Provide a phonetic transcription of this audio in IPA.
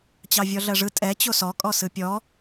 t͡ɕ ɑ vʲ ɔ ɮ ɜ ʐ ɯ tʼ ɛ t͡ɕ o s ɔ kʼ ɔ s ɯ pʲ ɔ

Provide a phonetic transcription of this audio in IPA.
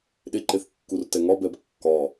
ɗ e ǃ e θ kː u r t ɛ ŋ ɒ b ɛ b kː ɒ

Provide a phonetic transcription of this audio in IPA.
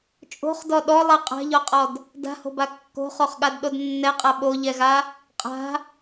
t͡ʃʼ o̤ χ d ɔ ɗ ɔ lˠ ɛ qʼ a̤ ʎ ɔ qʼ ɔ d | d a̤ h o̤ b a kː o̤ χ o χ ɠ a d ɗ o d nː ɛ qʼ a ɓ o ʎ ɛ ɣ a | qʼ a̤

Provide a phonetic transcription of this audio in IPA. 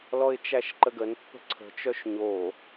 l ɔ ɪ̯ t͡ʃ æ ʃ ǃ ə ɡ ə n pː ə̤ ǀʰ ə̤ t͡ʃ œ ʃ ɲ o

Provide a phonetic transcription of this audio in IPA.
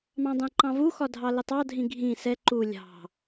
m ɑ̃ dˤ ɛ̃ ǃ ɑ̃ v u x ɒ dʱ ɑ l ɪ tˤ ɑ dʱ ĩ ɡʱ ĩ s ɛ ǃ u lʲ ɑ̤

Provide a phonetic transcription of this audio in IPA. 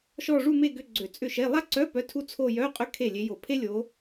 ʃ ɔ˥˧ ʐ u˥˧ m e˥˧ ɡ ʏ˧˥˧ ɡ͡ǀ ø˧˩˧ t͡sʼ ʏ˥˩ ʃ e˧˥˧ lˠ a˥ ǀ œ˧˥˧ p œ˧˥˧ tʰ u˥ t͡sʰ o˥˧ j œ˧˥˧ qʼ ʏ˥ kʰ e˥˩ lʲ e˨˦ j o˧˩˧ pʰ e˥ lʲ o˨˦

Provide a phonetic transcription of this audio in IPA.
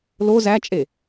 l o z æ t͡ʃʼ e

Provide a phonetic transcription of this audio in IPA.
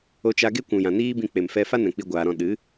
o˦ t͡ʃ a˦ ɡ e˦ kʷ ũ˨ j ã˨ n iː˦ b ĩ˧ k͡p e˨ m f ɛ˧ f a˦ n ɛ̃˨ k͡p i˧ ɡʷ aː˨ ɾ ɔ̃˧ ɗ ɨ˨˦

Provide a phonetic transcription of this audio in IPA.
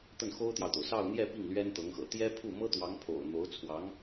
t̪ ə˥˩ n x o˥ ʊ̯ t̪ j ɑ˨ ʊ̯ t̪ o˩ ʊ̯ s ɑ˥˧ ʊ̯ n̪ j ɛ˥˧ p i˥˩ ŋ l ɥ ɛ˥ n t̪ ɤ˧˥ ŋ x ɤ̰˨˩ t̪ j ɛ˥ pʰ u˥˩ m ɤ˥ t̪ w ɑ˧˥ ŋ pʰ o̰˨˩ ʊ̯ n̪ o˧˥ ʊ̯ t͡sʰ w ɑ˧˥ ŋ

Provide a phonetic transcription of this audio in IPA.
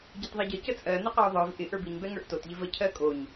ɟ ɛ t ðˤ ɛ ɟ ə c ə t͡sʼ ɜ n ɪ q ɜ o̯ ðˤ ə˞ v ʔ ɪ ʔ ə˞ b i ɲ b ɛ ŋ ə˞ ʔ t o t ʎ ɪ v ə cʰ ɜ kʼ o ɲ

